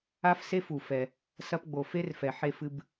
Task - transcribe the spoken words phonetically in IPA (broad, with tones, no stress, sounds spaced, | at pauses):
a˥ f s e˥ f u˩ f ɛ˩ | s ɐ˧ p ɡ͡b o˩ f e˥ r f ɛ˩ ħ e˧ f ɨ˧ b